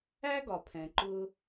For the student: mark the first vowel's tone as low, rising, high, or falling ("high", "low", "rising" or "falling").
high